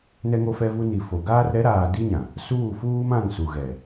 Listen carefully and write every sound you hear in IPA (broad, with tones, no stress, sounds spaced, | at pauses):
n ɛ˦ ŋ o˦ f ɛ˦ v u˦ n i˨ f o˨ ɡ aː˦ r ɾ ɛ˨˦ ɾ aː˨ d i˦ ɲ ã˨ | s uː˦˨ f uː˦ m ã˦˨ ŋ s u˨ ɣ ɛ˨